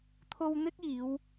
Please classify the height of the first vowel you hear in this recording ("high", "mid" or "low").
mid